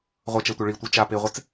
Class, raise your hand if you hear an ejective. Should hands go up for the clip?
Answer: no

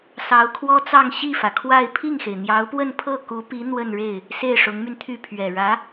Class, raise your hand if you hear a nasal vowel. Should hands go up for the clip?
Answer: no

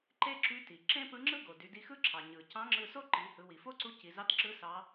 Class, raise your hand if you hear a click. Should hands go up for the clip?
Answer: yes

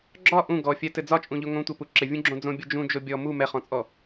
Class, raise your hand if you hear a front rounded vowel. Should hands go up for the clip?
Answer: no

